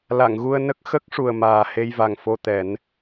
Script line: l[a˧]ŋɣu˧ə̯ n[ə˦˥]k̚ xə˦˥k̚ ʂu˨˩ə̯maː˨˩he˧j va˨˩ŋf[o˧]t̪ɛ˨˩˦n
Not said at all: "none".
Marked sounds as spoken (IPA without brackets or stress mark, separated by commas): a˨˩˨, ə˦˥, o˧